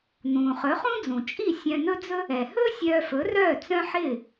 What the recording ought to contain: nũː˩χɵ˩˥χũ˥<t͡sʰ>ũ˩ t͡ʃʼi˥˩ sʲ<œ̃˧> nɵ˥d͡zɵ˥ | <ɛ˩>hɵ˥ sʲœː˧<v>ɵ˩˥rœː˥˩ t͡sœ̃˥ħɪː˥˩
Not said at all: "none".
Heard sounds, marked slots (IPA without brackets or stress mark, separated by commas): d͡z, œ̃˧, ɛ˩, f